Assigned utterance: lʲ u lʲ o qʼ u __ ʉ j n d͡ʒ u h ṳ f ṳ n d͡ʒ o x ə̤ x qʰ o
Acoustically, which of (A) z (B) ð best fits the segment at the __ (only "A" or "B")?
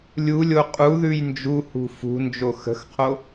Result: B